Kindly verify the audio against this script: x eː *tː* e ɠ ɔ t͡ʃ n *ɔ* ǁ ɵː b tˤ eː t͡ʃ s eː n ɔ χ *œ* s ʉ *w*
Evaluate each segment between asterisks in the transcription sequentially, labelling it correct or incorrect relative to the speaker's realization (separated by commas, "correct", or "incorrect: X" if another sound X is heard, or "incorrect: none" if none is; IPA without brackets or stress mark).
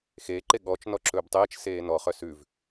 incorrect: ǃ, correct, correct, incorrect: v